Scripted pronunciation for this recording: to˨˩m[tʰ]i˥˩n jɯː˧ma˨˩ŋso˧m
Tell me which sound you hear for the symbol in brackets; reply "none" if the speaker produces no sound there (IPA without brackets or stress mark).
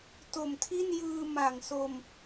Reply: tʰ